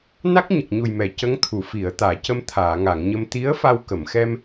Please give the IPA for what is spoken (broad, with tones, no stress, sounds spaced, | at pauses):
n a˦˥ k̚ ɲ ə˨˩ k̚ ɲ u˨˩ j m ɛ˨˩˨ c ə˧˥ ŋ t̪ʰ u˨˩˨ f i˨˩˨ ə̯ t̪ aː˨˩˨ c ə˧ m t̪ʰ aː˨˩˨ ŋ a˨˩˨ ŋ ɲ ə˧ m t̪ i˧˥ ə̯ f a˧ w k ə˨˩˨ m x ɛ˧ m